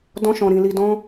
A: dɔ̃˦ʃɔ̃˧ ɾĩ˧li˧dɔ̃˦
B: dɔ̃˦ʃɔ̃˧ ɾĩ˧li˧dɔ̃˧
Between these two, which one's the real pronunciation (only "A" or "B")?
A